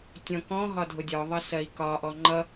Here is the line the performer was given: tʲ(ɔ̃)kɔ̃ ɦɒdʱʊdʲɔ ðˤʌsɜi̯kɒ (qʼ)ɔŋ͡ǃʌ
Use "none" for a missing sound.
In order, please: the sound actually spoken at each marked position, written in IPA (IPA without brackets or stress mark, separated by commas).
ɔ̃, ʔ